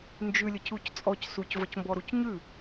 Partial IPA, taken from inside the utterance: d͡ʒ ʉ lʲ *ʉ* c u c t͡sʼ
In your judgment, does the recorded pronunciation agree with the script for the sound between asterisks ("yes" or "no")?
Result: no